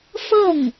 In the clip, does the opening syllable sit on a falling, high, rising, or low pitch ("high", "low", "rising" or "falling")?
falling